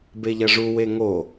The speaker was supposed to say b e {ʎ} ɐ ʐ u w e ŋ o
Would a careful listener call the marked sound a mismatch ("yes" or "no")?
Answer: no